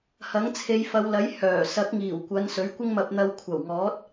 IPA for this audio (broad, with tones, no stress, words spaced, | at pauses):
hɐ˨˥ŋt͡sʰe˨˧jfɐ˨˧wlɐ˨˥j hœː˨˩ sɐ˨˥k̚ŋiː˨˩wkʷɐ˨˧n sɵ˨˥ɥkʷɪ˥ŋmɐ˧p̚n̪ɐ˧w kʷʰɐ˨˩wŋɔː˨˥t̚